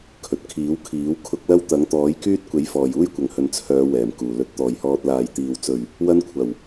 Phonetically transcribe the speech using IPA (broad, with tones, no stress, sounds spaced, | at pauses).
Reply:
kʰ ɵ˨ t̚ kʰ iː˨˥ w kʰ iː˨˥ w kʰ ʊ˧ k̚ l ɐ˥ w t̪ ɐ˨˥ ŋ t̪ ɔː˨˥ j k yː˥ t̚ kʷ e˨˥ j f ɔː˨˩ j uː˧ j kʷ ɐ˨˩ ŋ h ɵ˨ n t͡sʰ œː˨˧ w ɛː˨˩ m k uː˨˩ l ɵ˨ t̚ t̪ ɔː˨˩ j h ɔː˨ t̚ l aː˨˩ j t̪ iː˨˩ w t͡s ɵ˨˩ ɥ | w ɐ˧ n kʷʰ ɐ˨˩ w